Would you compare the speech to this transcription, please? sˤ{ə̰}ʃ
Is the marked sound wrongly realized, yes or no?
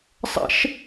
no